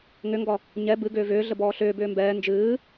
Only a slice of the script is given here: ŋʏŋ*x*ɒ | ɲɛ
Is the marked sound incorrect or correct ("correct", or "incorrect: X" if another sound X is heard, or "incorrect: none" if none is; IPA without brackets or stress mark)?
incorrect: ɡ